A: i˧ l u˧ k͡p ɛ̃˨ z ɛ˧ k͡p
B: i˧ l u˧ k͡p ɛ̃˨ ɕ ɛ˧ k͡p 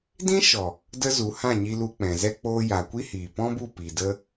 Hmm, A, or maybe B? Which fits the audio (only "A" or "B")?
A